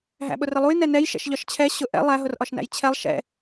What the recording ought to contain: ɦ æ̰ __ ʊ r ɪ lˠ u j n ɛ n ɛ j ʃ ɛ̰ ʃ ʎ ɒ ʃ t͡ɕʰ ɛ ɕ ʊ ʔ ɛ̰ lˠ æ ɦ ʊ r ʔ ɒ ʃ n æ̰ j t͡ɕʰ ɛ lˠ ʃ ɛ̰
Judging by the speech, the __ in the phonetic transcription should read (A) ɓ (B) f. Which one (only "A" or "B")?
A